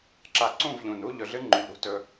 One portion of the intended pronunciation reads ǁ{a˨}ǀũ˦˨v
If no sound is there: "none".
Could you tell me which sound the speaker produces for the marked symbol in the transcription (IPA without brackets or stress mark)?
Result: a˨